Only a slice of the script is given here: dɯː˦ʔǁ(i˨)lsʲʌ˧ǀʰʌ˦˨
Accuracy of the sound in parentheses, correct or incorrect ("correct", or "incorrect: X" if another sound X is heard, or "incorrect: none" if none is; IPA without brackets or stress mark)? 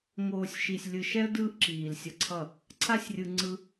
incorrect: iː˨